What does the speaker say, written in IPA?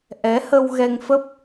ʔ ɛ˨˦ h ə˧ w ɣ ɛ˧ ŋ f ə˦˥ p̚

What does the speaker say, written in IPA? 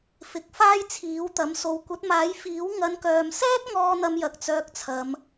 f ɪ˨˥ k̚ f aː˥ j t͡sʰ iː˨˥ w t̪ ɐ˨˥ m s o˨ w kʷ ɐ˨˥ t̚ m aː˨˥ j f iː˨˥ w ŋ ɐ˨˧ n k œː˨ m s ɛː˥ t̚ ŋ ɔː˥ n̪ ɐ˥ m j ɐ˧ k̚ t͡s œː˧ k̚ t͡sʰ ɐ˨˧ m

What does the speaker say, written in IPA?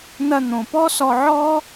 n̪ ɐ˧ n̪ õ˨ p ɔ˦ s ɔ˧ ʕ ɔ˦

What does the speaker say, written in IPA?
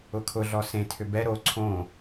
ʊ kʰ ʊ ɮ ɔ s ẽ tʰ ʏ b ɛ ɾ o ǀʰ õ

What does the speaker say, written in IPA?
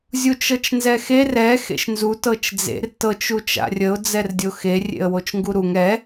zʲ u t͡ʃ ɤ t͡ʃ n z ɛ x e r ɛ x ḛ ʃ n z u t ɤ t͡ʃ d͡z ḛ r t ɤ t͡ʃ u t͡ʃ a̰ rʲ ə ʊ̯ d͡z ɛ r dʲ o x e rʲ ḛ ə̯ w o t͡ʃ ŋ ɡ u ɾ u ŋ ɛ

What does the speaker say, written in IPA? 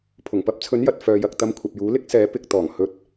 pʰ ʊ˨˩ ŋ p ɐ˧ p̚ t͡sʰ ɵ˨˥ n j ɐ˨ t̚ f œː˨ j ɐ˨ k̚ t̪ ɐ˧ m kʷʰ ɐ˨ p̚ j uː˨˥ l ɪ˥ k̚ s ɛː˨˥ p ɪ˧ k̚ t̪ ɔː˨˩ ŋ h ɵ˧ t̚

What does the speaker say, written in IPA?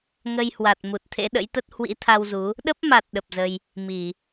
ŋ ə˧ j h w a˨˩ t̚ m u˨˩ t̚ t̪ʰ ḛ˧˥ ɗ ə̰˧˥ j t̪ ə˦˥ t̚ h w ḭ˧˥ t̪ʰ a˧ w z u˨˦ | ɗ ə˦˥ p̚ m a˨˩ t̚ ɗ ə˨˩ p̚ z ə˧ j | m i˧˩˨

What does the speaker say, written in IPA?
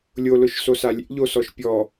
lʲ o l ʊ ʃ s o s a lʲ ḛ ʎ o s ɔ ʃ pʲ ɔ

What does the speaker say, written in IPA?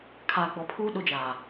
kʰ aː˨ ɡ͡b ɔ˨ pʰ uː˦ ɗ ʊ˦ d͡ʒ aː˨

